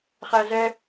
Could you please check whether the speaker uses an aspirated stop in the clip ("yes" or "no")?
no